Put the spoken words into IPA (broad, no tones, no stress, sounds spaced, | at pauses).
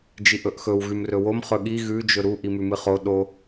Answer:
d͡ʒ i ʔ ɵ ʔ x ɵ w ɣ ʉ m r ɵ w o m χ ɵ ɠ i ɣ ʉ d͡ʒ ɵ ɾ u ʔ i m ʉ m ɨ χ o ɗ o